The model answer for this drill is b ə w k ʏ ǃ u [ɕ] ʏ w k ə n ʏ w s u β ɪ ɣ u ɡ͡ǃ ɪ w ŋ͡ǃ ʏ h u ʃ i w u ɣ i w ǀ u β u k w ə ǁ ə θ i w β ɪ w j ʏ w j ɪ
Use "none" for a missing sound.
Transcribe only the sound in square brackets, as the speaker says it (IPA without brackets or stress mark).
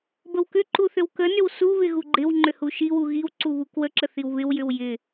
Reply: θ